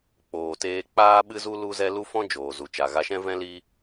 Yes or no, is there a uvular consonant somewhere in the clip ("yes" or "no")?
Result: no